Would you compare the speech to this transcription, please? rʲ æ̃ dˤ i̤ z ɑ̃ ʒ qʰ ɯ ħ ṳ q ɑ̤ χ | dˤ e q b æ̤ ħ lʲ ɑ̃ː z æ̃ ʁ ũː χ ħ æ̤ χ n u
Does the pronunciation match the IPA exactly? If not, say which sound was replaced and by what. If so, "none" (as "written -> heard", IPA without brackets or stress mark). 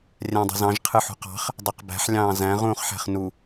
none